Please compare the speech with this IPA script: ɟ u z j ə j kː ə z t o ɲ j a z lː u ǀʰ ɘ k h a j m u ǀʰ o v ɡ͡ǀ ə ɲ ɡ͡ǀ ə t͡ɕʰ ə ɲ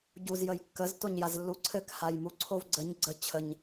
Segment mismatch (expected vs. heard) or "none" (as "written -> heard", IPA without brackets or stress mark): none